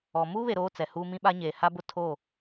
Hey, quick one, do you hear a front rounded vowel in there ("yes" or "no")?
no